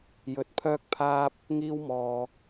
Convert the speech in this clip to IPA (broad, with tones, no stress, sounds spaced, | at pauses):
j ɵ˨˥ t̚ pʰ œː˥ k̚ pʰ aː˥ p̚ | ŋ iː˥ w m ɔː˧